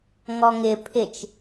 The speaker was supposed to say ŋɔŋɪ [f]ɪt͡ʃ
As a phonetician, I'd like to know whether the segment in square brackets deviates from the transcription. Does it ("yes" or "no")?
yes